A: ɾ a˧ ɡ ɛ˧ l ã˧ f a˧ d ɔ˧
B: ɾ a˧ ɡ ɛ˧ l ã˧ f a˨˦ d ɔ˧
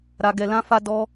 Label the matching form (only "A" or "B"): A